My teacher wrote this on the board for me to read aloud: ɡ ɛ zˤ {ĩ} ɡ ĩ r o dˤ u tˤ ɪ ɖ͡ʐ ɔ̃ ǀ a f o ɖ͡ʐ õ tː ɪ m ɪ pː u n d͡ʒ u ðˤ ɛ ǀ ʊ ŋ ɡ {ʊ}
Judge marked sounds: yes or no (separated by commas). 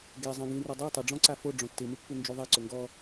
yes, no